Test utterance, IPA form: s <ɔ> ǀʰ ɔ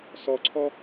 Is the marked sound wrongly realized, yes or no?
no